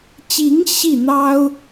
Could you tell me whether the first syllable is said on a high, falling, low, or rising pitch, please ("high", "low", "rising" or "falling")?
rising